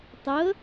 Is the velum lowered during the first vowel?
no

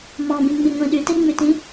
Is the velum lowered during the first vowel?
yes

